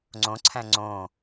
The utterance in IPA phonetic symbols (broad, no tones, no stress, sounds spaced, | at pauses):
ŋ͡ǀ õ ǀʰ æ̃ ŋ͡ǀ õ